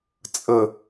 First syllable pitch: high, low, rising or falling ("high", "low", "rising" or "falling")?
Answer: low